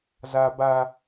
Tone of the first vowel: high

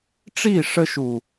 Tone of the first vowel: falling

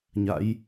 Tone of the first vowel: rising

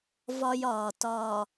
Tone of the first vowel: high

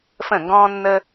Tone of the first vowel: falling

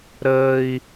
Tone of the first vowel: high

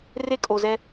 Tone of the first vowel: high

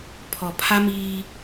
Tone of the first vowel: low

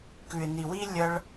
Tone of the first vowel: low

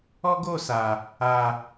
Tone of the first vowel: high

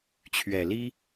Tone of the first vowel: low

